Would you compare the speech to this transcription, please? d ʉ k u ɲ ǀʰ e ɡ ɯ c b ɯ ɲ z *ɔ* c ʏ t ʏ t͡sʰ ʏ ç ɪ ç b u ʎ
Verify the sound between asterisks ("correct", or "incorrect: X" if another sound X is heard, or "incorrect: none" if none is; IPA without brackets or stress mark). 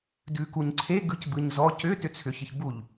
correct